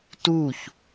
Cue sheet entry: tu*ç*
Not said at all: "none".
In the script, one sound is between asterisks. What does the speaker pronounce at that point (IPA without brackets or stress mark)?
ç